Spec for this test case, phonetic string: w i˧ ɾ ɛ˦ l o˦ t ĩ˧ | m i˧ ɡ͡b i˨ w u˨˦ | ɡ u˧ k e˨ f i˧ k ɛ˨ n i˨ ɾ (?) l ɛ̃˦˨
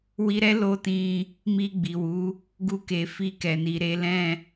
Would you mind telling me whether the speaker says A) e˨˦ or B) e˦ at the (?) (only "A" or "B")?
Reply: A